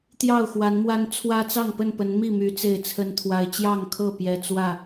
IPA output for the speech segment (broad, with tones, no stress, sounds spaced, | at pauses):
t̪ j ɑ˥˨ ʊ̯ x w a˨˦ n m w a˦ n t͡sʰ w ä˦ t͡s ɑ˥˨ ŋ p ə˥˨ n p ə˨˦ n m i˥˨ m y˨˦ t͡s e˥˨ ɪ̯ t͡sʰ ə˦ n t̪ʰ w a˦ ɪ̯ t͡ɕ j ɑ˥˨ ŋ kʰ ɤ˥˨ p j ɛ˦ t͡s w ä˥˨